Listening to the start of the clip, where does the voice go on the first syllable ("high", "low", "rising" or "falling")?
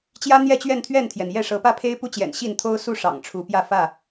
high